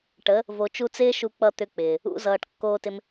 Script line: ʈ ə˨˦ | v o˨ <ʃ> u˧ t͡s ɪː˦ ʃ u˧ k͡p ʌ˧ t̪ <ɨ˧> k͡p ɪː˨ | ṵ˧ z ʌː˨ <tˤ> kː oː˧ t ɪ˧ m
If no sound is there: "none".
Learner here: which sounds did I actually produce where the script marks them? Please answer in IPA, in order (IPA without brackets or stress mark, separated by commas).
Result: t͡ʃ, ʏ˧, ʈ